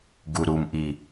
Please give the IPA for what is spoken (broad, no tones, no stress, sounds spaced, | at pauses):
ɡ u ɾ u m ʔ i